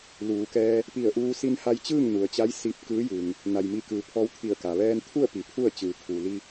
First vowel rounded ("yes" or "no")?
yes